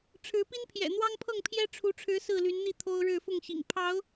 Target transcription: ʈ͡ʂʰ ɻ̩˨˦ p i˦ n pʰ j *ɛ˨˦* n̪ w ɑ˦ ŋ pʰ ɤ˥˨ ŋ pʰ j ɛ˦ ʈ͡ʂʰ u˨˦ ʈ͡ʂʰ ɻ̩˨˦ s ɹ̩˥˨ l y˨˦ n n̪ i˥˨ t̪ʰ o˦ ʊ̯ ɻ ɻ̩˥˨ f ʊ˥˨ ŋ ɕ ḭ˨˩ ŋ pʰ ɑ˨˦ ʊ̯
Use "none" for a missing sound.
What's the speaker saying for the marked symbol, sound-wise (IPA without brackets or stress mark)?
ɛ̰˨˩